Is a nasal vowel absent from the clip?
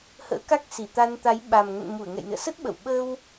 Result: yes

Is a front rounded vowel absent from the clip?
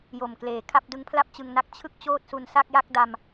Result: yes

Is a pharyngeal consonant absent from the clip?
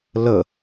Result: yes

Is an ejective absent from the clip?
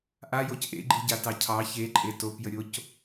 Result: no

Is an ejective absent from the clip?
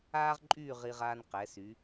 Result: no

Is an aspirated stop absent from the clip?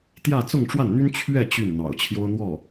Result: no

